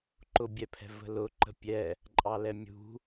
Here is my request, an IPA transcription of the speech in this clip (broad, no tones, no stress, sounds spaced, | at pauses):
ǃ ʊ bʲ ɛ pʰ ɛ̤ v ə̤ l ʊ ǃ ə̤ pʲ ɛ | ǃʼ ɑ l ɛ mʲ ṳ